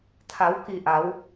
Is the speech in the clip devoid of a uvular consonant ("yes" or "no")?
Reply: yes